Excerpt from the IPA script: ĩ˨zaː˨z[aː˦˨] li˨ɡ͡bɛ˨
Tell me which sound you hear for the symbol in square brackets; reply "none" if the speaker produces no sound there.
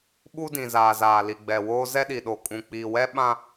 aː˨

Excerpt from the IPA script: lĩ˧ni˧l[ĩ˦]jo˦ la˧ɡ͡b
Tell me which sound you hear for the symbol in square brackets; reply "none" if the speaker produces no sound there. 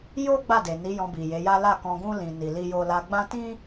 i˦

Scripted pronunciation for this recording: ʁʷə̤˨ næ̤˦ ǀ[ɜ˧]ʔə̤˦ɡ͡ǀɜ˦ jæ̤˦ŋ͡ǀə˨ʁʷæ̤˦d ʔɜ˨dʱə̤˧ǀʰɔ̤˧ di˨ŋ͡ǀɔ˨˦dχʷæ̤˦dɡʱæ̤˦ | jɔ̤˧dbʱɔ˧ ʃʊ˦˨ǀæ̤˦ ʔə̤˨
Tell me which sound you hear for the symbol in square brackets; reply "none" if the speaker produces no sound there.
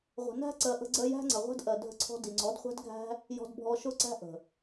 ɜ˧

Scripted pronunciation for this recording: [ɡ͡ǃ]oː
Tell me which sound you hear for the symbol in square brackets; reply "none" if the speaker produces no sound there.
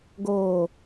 ɡ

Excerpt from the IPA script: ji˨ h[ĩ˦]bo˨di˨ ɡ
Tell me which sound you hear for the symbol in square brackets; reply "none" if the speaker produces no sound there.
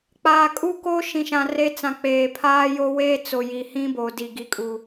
ĩ˦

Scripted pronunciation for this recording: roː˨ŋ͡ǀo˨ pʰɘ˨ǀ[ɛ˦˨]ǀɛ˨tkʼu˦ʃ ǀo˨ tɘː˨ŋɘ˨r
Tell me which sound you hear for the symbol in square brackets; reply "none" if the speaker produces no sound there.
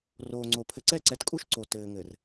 ɛ˦˨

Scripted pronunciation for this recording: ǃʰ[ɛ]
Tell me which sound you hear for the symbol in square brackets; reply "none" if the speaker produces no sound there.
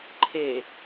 e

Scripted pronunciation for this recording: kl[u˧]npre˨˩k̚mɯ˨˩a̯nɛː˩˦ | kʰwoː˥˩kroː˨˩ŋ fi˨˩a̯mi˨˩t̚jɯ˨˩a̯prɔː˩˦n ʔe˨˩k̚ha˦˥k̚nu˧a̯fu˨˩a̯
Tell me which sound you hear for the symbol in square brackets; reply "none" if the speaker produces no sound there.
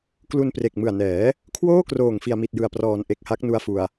u˧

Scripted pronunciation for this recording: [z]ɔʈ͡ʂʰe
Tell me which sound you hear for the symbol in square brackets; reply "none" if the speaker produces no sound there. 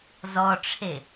z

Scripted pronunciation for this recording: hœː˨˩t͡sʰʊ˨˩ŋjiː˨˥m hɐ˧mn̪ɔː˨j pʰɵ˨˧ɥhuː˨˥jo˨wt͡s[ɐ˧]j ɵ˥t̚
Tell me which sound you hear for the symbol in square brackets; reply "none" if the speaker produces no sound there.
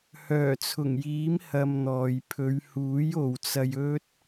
ɐ˧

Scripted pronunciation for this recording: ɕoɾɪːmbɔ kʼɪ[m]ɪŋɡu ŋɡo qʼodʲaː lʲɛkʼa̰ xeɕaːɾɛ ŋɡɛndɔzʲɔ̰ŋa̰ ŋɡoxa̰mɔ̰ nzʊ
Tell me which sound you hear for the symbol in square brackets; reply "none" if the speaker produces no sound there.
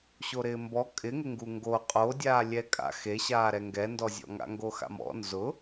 ŋ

